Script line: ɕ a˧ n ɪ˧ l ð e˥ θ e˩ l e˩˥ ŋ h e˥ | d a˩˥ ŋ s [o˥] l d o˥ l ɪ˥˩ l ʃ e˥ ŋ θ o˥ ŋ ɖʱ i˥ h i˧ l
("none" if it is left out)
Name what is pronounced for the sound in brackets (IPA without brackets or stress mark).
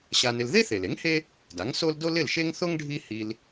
o˥